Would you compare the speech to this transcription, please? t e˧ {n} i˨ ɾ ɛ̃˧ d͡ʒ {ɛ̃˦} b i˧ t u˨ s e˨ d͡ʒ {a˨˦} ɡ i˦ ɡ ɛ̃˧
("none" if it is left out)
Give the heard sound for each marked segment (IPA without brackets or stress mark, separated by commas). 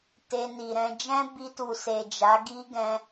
n, ɛ̃˦, a˨˦